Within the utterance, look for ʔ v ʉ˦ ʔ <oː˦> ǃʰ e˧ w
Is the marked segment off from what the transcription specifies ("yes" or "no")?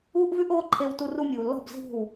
no